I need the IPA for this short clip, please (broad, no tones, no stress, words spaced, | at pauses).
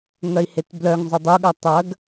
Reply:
ŋœi̯hetblœŋzˤɵ dˤuɠɐ tˤɐɡ